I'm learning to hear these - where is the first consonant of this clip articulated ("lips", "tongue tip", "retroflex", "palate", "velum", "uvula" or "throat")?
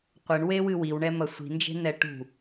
uvula